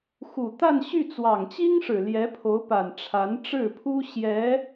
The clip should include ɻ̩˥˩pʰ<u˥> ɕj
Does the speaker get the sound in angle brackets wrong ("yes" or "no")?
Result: no